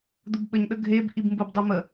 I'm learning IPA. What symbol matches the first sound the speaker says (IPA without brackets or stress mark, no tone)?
d̪